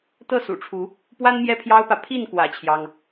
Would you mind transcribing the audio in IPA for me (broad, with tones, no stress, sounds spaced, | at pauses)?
t̪ ɤ˥˨ s ṵ˨˩ ʈ͡ʂʰ u˨˦ | p w a˦ n m j ɛ˥˨ pʰ j ɑ˦ ʊ̯ p ä˨ pʰ i˥˨ n k w ä̰˨˩ t͡ɕʰ j ɑ˦ ŋ